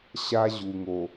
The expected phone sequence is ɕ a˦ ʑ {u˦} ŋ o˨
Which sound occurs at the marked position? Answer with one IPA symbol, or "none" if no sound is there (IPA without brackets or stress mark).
u˨